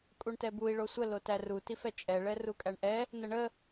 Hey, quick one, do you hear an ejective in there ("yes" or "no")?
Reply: yes